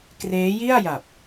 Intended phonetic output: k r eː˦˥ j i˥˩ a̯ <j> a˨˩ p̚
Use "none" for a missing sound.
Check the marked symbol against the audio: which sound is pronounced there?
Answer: j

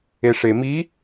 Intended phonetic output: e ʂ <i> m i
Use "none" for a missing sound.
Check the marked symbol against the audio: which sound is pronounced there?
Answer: e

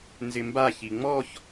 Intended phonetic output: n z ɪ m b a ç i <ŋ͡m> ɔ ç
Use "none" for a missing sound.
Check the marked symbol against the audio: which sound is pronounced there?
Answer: ŋ͡m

